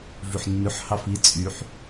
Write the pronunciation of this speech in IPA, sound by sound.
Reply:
v ʉ ħ nː ʉ ħ h ɑ f i t͡sʼ y ħ

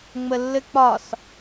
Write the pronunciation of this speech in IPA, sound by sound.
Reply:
ŋ͡m ə lː ɘ k͡p ɒ s

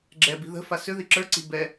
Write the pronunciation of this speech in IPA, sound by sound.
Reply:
ɡ͡ǁ ɛ b i̤ ð ə̤ f a s ʏ ð i ǁ ə˞ ǀ i̤ b ɛ

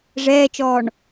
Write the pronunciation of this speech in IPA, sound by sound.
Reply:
ʐ ɛː t͡ʃ ɔː ɳ

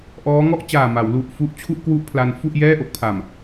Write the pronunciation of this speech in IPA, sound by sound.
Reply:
ʔ ɔː˦˥ ŋ ɔ˥˩ ʔ t͡ɕ aː˨˩ m a˩˦ w l u˨˩ ʔ f u˦˥ ʔ t͡ɕʰ u˥˩ ʔ k w u˥˩ ʔ pʰ l a˧ n f u˥˩ ʔ j ɛː˥˩ ʔ o˦˥ k̚ pʰ a˨˩ m

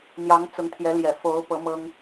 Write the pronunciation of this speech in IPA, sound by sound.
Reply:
n̪ j ɑ˧˥ ŋ t͡s ʊ˧˥ ŋ t̪ʰ j ɛ˧˥ l j ɛ˨˩ f o˧˥ ʊ̯ p ɤ˧˥ m ɤ˥ ŋ

